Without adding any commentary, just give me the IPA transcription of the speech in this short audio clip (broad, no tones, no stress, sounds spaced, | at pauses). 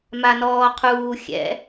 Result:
m a n ɔː qʰ uː xʲ ɛ̰